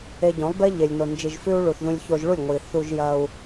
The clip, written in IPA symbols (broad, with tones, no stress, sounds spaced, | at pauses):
e˧ ɟ õ˨˦ lˠ b e˦ ʎ e˨ lʲ n o˨ n d͡ʒ i˨ ʒ f ʉ˧ u̯ ɭ u˨ θ ð ũ˧ lʲ ç o˧ ʒ ɭ u˦˨ lʲ ŋʷ i˨ θ u˧ ʒ j ɐ˧ u̯